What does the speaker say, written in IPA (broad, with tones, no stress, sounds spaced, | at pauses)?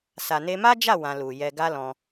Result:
s a˨ n e˧ m a˦ d͡ʒ a˦˨ w ã˧ l u˨ j ɛ˧ ɡ a˦ l ɔ̃˧